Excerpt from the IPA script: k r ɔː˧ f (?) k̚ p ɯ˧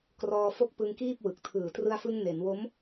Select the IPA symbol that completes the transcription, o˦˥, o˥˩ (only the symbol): o˦˥